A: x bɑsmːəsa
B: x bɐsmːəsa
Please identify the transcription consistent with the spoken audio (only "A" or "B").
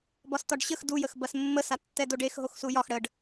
B